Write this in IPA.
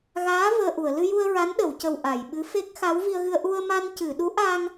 ɣ aː˧˥ v əː˧ ʔ u˨˩˨ ə̯ l ɨ˧ j u˧ ə̯ ɹ a˧˥ n ɗ ə˨˩˨ w c ə˨˩ w ʔ a˨˩˨ j ɓ ɨ˧˥ f e˦˥ k̚ x a˧˥ w v i˧ ə̯ ɣ ɨ˧ ə̯ ʔ u˧ ə̯ m a˧ n c ɨ˨˩˨ ɗ u˧˥ ʔ a˧ ŋ

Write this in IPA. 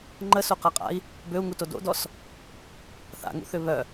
ŋ͡ǃ ə s o q a qʼ a̰ i̯ | b ø u̯ ŋ u t o d o̰ d ɔ s | θ a̰ ŋ ṵ θ ʏ β œ

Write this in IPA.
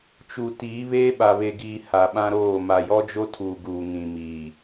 t͡ʃ u˨ t iː˨˦ β eː˦ ɓ a˨ β e˨ ɡ iː˨ h a˨ ɓ ã˦ ɾ oː˦˨ m a˨ j ɔ˦ d͡ʒ o˦ tʰ uː˨ ɡ uː˨ ŋ ĩ˨ m iː˨

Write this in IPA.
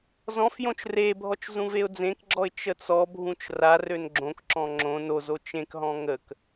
z ɔ̃ f j õ t͡ʃ r e bʱ ɔ t͡ʃ z ũ v e ʊ̯ d͡z ẽ k ɡ͡ǁ ɔ ɪ̯ t͡ʃ ə t͡s ɔ bʱ ũ t͡ʃ r a r ø n ɡ͡ǁ õ k ǁ ɔ̃ ŋ͡ǁ õ n o z o t͡ʃ ẽ k ɦ ɔ̃ ŋ ə k

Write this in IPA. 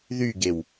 ð y ɡ e w

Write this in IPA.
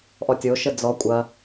ʔ ɔ tʲ o ʃ ə d͡z ɔ kʷʼ ɐ

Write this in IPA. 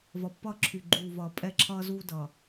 v ʌ˨ pː ʌː˦ ǁʰ y˨ ɡ͡ǃ uː˨ v ʌː˨ pʼ ɛ˦˨ ǁʰ ʌː˦ z uː˦ d ʌː˨

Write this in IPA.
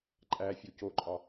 ǃʼ æ fʲ o c o ǃʼ ɒ

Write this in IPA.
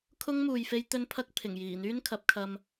kʰ ʊ˥ ŋ m uː˨ j f e˥ j t̪ ɵ˥ n pʰ ɐ˥ k̚ pʰ ɪ˨˩ ŋ j iː˨˩ n̪ yː˥ n kʰ ɐ˨˥ p̚ kʰ ɐ˧ m

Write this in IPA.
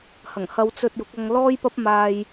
h ɐ˨˩ ŋ h ɐ˧ w t͡s ɵ˧ t̚ j ʊ˨˥ k̚ ɐ˧ ŋ l ɔː˥ j p ɐ˥ p̚ m aː˧ j

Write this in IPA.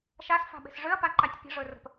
ʃ a s f a̤ ɓ e̤ s ʐ ʏ ɐ̯ p a ǃ a tʲ pʲ ə̤ ʐ ɵ r ə̤ p

